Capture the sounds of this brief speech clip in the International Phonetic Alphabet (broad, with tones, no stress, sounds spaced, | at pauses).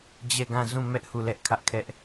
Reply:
d͡ʑ ɛ˦˨ ɡ ã˦˨ z ũ˦˨ m ɛ˦ ʔ h u˦˨ l ɛ˦ ʔ kʰ ä˦ ʔ kʰ ɛ˦ ʔ